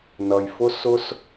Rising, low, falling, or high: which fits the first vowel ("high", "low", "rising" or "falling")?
low